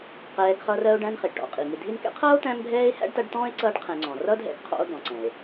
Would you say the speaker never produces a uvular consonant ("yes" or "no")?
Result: no